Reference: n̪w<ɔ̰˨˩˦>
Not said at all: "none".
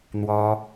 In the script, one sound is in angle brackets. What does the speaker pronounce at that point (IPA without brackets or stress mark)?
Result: ɔ˥